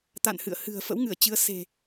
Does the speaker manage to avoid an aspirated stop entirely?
yes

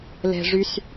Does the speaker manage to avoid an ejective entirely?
yes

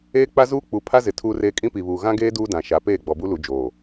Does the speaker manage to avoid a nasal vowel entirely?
no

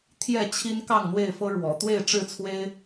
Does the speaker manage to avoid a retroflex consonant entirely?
no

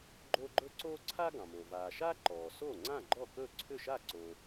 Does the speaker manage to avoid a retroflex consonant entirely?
yes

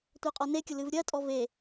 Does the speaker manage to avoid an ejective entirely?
no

